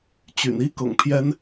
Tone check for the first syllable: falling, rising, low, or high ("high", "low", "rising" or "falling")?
low